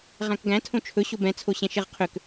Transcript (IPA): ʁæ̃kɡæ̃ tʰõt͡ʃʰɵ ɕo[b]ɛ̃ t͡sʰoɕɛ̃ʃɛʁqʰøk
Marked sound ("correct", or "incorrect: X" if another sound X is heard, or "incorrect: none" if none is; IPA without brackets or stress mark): correct